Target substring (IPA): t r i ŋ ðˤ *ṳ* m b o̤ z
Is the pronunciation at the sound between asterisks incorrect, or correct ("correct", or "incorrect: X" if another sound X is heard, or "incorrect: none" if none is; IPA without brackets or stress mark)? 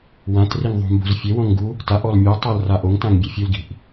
correct